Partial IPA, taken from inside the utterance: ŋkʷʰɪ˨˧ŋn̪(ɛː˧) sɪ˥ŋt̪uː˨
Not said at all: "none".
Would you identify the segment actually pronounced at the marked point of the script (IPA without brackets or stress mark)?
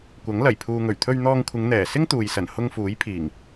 ɛː˨˩